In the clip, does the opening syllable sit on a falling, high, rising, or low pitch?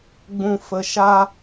low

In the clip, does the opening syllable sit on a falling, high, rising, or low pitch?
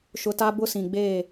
high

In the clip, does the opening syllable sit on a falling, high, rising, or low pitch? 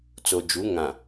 low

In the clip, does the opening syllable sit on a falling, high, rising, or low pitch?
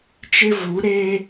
high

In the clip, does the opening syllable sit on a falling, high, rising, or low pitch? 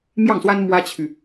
falling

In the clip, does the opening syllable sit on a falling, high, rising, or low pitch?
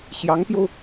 rising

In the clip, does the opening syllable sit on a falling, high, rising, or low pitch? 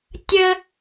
high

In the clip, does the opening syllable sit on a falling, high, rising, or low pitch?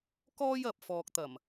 high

